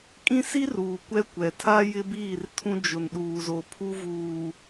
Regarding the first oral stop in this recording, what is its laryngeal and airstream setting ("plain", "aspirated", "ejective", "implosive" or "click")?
ejective